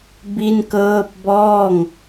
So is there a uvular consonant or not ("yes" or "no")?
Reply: no